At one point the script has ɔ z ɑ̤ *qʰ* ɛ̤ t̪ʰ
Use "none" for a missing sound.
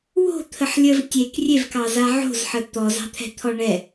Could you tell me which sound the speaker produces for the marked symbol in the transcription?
t̪ʰ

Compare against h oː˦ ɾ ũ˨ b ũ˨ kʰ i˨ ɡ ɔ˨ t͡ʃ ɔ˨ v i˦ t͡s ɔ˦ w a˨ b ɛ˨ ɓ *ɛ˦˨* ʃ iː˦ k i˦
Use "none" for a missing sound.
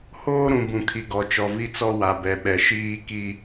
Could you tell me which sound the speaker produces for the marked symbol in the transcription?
ɛ˨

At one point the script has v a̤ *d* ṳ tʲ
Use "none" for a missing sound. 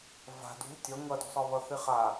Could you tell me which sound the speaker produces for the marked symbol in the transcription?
d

